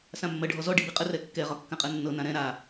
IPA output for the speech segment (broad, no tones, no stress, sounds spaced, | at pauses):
s ã mː ɜ ɖʱ ɔ z ɔ ɖ i b i qʼ ə r ɛ kː ɛ ʁ ɒ kː ã qʼ ɜ nː ɤ n ã ɾ ɛ̃ ɾ a